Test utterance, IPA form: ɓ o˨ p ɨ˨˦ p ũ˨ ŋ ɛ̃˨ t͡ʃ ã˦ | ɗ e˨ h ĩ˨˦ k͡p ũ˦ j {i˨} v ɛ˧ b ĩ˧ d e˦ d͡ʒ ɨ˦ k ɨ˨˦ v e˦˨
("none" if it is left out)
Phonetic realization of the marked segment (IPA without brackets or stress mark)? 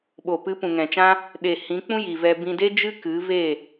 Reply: i˨